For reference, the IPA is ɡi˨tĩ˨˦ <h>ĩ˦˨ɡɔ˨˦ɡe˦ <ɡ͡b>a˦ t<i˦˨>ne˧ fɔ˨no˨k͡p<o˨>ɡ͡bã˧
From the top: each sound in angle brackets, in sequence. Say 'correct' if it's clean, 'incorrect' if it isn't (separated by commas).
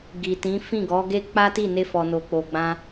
incorrect, incorrect, correct, correct